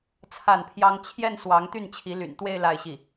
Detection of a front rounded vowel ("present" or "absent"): present